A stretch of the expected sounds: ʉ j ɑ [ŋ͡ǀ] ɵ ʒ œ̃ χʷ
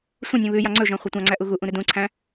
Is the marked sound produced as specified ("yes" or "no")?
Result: yes